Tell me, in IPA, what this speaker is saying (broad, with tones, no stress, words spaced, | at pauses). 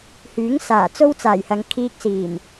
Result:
hyː˨˥ŋsaː˨˩ t͡so˥wt͡saː˨˩jhɐ˨˧ŋ kʰiː˧k̚siː˨˩m